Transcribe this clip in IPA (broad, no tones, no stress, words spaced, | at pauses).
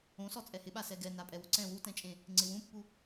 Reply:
õsɔ t͡sʼɛhɪɓa sɛɡɛ napʼɛwʊǀɛ̃ wutɛ̃t͡ʃʼẽ | ŋ͡ǀɪwũpːu